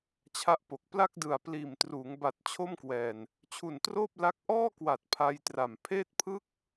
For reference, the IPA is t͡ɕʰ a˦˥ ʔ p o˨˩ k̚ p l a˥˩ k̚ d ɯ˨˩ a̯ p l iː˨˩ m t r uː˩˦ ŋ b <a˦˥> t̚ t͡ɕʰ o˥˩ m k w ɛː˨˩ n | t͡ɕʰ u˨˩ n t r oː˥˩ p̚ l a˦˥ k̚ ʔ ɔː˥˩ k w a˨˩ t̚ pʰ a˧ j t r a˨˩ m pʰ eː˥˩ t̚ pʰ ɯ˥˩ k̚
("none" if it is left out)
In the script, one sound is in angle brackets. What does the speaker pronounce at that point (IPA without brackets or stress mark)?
a˨˩